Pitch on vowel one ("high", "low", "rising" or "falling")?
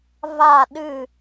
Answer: falling